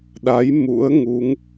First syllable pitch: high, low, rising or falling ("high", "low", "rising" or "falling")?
rising